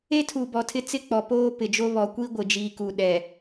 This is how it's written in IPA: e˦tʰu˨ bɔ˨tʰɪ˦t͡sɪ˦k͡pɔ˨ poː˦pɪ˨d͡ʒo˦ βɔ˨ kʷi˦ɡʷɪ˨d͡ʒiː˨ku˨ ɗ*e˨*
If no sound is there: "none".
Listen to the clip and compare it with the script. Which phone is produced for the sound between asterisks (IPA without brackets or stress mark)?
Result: ɛ˨